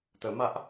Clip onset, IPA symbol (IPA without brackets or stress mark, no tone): t̪